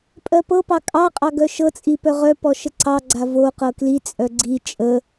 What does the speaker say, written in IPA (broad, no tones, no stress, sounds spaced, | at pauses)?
pʼ ɜ p ɤ p ɑ kʼ ɑ qʼ ɑ ɡ œ ʃ ɤ t͡sʼ i p œ ʁ œ p ɔ ʃ ə ǀ ɑ ɡ͡ǀ a v o q ɤ k l i t͡sʼ œ ɡ͡ǀ i t͡ʃʼ ə